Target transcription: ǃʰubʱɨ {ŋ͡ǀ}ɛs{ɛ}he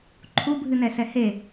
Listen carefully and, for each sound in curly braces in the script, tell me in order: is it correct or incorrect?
incorrect: n, correct

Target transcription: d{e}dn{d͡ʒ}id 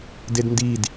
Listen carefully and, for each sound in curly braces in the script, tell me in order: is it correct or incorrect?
correct, incorrect: d

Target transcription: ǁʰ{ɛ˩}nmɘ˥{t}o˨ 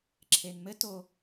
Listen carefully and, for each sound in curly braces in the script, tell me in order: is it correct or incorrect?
incorrect: e˩, correct

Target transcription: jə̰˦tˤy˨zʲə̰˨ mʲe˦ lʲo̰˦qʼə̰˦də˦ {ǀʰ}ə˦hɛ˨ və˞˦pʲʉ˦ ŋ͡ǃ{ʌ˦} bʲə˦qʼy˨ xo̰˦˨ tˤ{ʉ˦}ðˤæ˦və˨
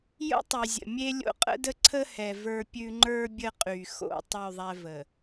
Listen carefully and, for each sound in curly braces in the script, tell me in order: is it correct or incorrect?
correct, incorrect: ə˞˦, incorrect: ʉ˦˨

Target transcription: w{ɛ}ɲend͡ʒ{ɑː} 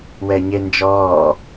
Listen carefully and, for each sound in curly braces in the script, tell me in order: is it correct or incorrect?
correct, incorrect: ɔː

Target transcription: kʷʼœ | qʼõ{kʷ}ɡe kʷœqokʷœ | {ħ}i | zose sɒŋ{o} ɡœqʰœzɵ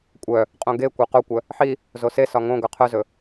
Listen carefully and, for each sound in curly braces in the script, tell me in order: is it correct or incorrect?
incorrect: none, correct, incorrect: õ

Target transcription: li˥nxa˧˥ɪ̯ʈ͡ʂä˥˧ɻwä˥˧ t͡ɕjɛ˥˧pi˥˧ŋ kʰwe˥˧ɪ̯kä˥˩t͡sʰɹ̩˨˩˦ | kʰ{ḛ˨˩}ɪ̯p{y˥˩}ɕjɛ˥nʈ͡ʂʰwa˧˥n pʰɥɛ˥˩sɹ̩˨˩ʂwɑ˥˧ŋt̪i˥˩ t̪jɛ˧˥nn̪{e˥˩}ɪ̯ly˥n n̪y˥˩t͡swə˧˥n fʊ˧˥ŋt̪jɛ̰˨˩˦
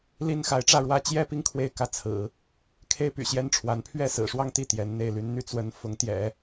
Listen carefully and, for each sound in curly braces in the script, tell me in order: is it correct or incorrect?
incorrect: e˥, incorrect: y̰˨˩, correct

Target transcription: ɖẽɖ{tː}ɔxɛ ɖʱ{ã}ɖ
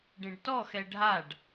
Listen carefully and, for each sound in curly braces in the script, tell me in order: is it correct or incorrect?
incorrect: t, incorrect: a

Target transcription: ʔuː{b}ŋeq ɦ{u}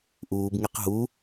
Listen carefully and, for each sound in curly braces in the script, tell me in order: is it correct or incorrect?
correct, correct

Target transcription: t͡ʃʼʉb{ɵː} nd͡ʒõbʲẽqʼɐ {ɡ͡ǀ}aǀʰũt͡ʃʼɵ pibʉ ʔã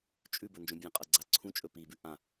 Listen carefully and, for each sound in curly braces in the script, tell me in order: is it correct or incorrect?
incorrect: ɵ, correct

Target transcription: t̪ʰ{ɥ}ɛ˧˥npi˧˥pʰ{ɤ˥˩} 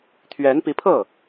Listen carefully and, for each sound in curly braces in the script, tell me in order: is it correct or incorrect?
correct, correct

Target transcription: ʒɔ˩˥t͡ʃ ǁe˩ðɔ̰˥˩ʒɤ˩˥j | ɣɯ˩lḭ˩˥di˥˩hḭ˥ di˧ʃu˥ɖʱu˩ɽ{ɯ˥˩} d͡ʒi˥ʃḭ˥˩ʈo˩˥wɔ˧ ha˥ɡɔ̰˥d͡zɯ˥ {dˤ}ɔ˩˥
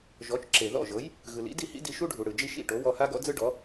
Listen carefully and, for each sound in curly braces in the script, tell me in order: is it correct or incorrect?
incorrect: ɯ˩, incorrect: ɖ

